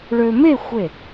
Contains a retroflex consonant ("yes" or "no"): yes